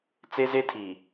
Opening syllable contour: high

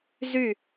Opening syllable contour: falling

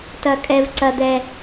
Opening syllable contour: high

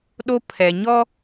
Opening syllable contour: high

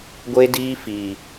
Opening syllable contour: high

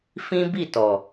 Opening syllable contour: high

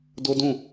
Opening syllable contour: high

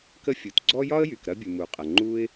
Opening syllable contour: high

